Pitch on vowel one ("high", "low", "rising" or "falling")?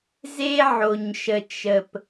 high